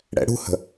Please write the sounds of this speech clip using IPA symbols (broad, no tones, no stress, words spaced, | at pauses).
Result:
ɽɛ̰ɽṳhə̤